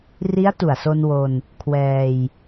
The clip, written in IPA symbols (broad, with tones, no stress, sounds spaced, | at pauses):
r i˦˥ a̯ t u˨˩ a̯ s o˧ n w o˧ n | kʰ w ɛː˧ j